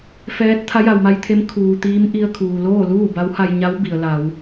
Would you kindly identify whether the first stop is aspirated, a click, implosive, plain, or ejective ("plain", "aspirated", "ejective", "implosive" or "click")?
plain